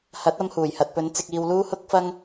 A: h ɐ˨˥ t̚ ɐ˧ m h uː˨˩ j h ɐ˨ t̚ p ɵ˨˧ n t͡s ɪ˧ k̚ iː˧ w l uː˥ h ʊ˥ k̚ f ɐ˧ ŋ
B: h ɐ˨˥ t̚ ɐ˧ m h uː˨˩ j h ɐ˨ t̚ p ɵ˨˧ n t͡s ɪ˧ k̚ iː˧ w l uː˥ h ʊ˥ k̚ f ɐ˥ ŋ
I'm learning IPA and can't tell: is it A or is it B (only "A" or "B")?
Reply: B